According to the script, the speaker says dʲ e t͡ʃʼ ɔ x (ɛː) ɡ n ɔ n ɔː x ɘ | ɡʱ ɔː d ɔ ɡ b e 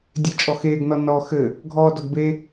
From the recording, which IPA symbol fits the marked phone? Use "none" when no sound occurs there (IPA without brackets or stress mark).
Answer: eː